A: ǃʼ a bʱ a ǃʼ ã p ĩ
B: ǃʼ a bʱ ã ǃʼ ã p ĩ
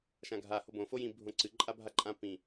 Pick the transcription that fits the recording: A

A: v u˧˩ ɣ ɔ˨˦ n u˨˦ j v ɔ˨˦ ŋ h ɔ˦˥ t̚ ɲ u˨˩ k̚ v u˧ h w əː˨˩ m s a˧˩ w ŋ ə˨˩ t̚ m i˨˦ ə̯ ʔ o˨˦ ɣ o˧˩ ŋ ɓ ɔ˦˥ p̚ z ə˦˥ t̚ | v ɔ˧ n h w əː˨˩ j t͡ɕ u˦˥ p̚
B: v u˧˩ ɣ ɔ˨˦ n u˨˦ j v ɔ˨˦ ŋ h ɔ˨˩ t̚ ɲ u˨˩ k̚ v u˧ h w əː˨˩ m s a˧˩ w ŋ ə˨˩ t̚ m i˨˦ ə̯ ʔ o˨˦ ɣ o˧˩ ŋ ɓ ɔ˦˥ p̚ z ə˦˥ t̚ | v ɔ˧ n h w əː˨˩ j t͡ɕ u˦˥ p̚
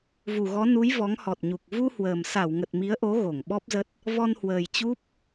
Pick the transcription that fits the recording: B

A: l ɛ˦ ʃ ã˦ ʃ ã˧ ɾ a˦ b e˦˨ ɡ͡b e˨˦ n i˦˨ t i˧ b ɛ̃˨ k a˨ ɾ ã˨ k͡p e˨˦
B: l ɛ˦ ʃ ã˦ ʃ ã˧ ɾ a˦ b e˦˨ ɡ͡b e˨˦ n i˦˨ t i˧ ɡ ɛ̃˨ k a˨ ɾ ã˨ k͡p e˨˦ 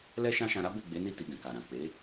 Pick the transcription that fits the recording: B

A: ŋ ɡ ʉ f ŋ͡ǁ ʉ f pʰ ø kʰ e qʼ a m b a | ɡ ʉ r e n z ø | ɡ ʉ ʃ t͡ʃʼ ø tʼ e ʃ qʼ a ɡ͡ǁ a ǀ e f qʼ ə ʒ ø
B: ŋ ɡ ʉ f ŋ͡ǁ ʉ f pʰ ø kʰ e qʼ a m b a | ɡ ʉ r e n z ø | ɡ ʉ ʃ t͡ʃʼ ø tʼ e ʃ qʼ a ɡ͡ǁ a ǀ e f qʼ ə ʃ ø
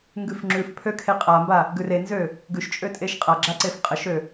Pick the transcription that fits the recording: B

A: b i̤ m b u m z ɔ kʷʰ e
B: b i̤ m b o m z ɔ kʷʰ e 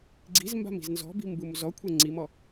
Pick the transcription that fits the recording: A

